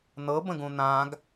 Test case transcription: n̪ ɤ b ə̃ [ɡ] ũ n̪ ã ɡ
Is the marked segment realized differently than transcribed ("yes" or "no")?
no